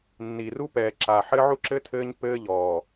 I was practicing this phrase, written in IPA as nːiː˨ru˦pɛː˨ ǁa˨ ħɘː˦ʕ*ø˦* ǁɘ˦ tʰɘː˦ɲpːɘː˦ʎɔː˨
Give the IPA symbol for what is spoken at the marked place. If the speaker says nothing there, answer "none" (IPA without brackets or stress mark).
u˦